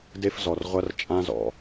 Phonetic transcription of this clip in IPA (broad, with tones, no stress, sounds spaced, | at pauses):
d e˥ f z ɔ˨ r ʁʷ ɐ˥ r t͡ʃʼ ã˥ z ɔ̰˨